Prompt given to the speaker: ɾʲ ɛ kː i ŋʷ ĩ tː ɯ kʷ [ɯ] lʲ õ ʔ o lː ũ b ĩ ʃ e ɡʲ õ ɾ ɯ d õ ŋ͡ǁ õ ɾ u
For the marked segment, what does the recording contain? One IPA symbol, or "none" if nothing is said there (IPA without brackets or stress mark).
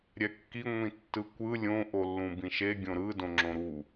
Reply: ɯ